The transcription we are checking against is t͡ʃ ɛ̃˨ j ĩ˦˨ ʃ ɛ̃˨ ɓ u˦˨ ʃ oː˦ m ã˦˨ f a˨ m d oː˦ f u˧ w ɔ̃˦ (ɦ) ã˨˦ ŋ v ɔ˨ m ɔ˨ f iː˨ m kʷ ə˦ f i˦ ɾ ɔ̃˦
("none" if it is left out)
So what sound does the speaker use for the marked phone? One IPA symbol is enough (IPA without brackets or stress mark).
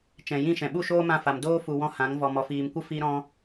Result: h